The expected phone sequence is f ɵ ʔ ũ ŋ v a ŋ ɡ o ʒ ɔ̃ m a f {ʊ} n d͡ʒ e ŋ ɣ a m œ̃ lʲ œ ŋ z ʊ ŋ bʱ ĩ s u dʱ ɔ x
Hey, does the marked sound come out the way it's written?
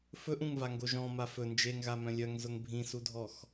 no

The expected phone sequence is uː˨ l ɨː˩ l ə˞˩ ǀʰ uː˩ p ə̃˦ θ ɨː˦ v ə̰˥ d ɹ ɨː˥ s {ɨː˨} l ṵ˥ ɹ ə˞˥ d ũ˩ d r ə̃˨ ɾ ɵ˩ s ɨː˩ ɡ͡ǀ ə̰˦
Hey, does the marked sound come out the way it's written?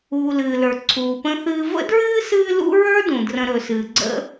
no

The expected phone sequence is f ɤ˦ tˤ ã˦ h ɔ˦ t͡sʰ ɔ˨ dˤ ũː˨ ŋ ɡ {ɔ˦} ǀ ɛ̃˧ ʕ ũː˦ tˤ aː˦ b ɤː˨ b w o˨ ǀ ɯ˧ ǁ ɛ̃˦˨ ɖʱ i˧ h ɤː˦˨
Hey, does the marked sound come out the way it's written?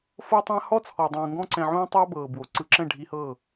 no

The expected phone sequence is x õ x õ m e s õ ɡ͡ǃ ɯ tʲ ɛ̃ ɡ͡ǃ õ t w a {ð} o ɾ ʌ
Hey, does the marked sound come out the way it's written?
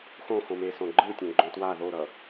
yes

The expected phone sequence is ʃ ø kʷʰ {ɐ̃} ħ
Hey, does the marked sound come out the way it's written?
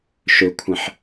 yes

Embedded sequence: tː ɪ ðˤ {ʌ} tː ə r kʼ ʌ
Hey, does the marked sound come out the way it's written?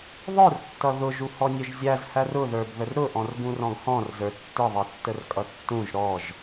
yes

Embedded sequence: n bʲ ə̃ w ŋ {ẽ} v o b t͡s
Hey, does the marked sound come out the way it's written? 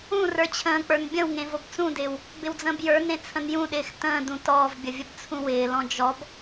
yes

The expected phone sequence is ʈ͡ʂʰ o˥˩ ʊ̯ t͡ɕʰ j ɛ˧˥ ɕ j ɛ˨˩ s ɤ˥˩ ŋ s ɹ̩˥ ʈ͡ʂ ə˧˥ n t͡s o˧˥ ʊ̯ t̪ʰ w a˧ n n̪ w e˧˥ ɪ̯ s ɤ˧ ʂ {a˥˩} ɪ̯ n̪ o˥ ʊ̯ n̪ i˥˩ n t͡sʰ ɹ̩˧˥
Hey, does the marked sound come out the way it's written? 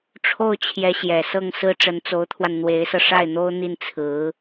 yes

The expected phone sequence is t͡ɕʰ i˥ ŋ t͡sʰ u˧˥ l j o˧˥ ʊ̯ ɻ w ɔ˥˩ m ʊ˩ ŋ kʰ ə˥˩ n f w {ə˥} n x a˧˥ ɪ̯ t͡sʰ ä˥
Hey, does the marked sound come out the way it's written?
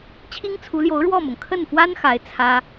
no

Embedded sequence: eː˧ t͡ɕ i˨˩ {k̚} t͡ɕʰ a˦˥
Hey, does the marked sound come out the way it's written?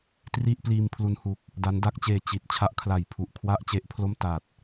no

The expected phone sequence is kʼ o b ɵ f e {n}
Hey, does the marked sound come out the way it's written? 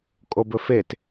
no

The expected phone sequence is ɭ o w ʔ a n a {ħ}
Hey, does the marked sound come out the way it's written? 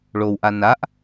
no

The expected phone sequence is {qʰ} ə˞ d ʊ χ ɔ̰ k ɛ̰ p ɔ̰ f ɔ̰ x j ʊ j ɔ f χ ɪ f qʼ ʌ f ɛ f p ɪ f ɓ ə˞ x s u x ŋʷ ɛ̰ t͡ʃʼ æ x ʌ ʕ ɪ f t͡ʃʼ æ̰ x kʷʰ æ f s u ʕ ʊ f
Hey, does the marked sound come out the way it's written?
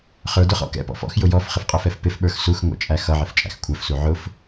no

